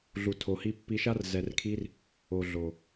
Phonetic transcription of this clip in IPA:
ɮ u˨ tʰ o˨ h i˧ pː i˧ ʃ a˦ r z ɛ˧ r kʰ i˦ r | o˨ ɮ o˨

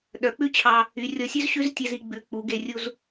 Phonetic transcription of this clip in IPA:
ɗ œ˩˧ k͡p ʉ˥ t͡ɕʰ ɑ˧ | y˩˧ rʲ ɔ˧ sʲ ʉ˥ z ɕ ʉ˥ z tʲ ɛ˧ z i˧ ɡ͡b ʉ˩˧ k͡p u˩˧ ɡ e˧ rʲ u˧ z

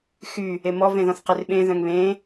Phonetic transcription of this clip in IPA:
x y | e m ɔ v ẽ ð ɔ̃ θ q e r ɓ ẽ ð œ̃ ŋ β ẽ

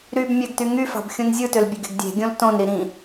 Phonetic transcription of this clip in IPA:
ɾ y b mʲ æ ɡ t y ŋ y f ɑ̤ b xʲ ũ n zʲ ɯ t ø l bʲ ø ɡ e̤ ɡ dʲ e̤ ɡʲ õ l t õ n ɾ i ɾ ĩ

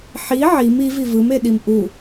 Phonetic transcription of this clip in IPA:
ħ i ʕ i m i v i v ɯ m e ɗ i m ʔ u

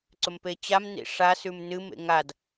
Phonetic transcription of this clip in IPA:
ǀ ɵ m p e t͡ɕ a m n ḭ ʂ a s ʉ m n ɨ m ḛ ŋ a d

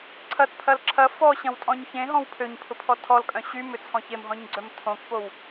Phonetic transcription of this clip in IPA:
ǀʰ ɐ t pʰ ɐ l ǁʰ ɐ f ɔ ɕ ɐ̃ w tʼ ɔ̃ ɲ ç ẽ ɦ ɔ̃ w pʰ ø ɲ pʰ ʊ pʰ ɔ tʰ ɔ l kʼ œ̃ ɕ y m ʏ t͡sʰ ɔ̃ ç e m ɦ ɔ̃ ɲ ɡ͡ǀ œ m tʰ õ k p o w

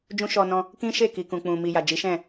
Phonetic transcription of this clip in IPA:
d͡ʒ ũ˦ ʃ ɔ˧ n ɔ̃˧ | k ĩ˦ ʃ e˦˨ k i˨ k ũ˨ k͡p ũ˨ m i˨ j a˨ d͡ʒ i˨˦ ʃ ɛ̃˦˨

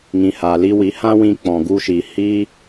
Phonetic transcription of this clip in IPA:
ŋ ĩ˨ h aː˨ l i˧ w i˨˦ h ã˦ w ĩ˧ k͡p ɔ̃˨ ɡ u˧ ʃ iː˨ h i˧

